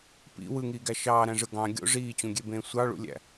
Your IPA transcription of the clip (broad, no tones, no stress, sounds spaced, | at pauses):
p ḭ w ɯ ŋ iː ɡ æ ʃ ɑː ɾ æ̃ ʐ ɯ ɡ ɑ̃ ɡʲ o̰ ʐ iː t͡ɕ ũ ɡʲ e b ẽː sʷ ɑ ɭ ṵ lʲ æ̰